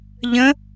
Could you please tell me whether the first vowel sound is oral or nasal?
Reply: nasal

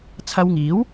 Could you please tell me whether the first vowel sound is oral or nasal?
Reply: oral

